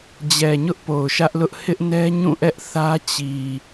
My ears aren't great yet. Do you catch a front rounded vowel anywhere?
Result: no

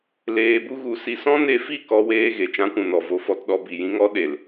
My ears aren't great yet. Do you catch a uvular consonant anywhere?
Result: no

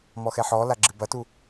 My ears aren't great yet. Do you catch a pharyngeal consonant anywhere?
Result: yes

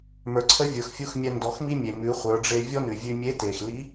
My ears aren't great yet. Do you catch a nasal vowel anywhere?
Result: no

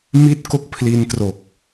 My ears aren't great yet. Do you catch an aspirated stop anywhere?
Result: yes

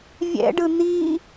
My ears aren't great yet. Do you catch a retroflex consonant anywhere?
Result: yes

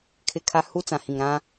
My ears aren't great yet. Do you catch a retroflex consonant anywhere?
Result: no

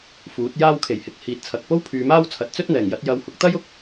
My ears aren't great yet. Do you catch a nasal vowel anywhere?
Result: no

